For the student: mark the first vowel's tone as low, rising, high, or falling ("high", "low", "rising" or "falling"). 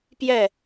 falling